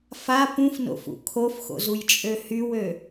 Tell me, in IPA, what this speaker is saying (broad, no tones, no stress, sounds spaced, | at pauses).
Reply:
f a p ũ f n o̰ f ṵ kʰ o f x o̰ z u j t͡ʃʼ ø h y w ø